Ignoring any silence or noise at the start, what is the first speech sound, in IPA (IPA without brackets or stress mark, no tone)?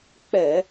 k͡p